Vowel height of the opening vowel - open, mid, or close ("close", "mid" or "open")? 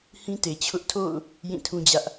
close